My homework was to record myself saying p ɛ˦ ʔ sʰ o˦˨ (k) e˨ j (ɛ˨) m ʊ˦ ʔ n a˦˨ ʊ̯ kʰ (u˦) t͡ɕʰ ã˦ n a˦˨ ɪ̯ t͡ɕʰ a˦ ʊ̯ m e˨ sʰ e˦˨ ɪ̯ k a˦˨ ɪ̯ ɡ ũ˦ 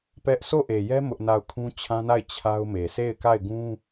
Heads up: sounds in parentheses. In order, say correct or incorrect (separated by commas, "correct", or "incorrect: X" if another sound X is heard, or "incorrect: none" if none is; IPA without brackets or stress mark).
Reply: incorrect: ʔ, incorrect: ɛ˦, incorrect: ũ˦